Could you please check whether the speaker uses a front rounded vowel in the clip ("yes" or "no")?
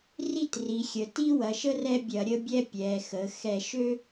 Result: yes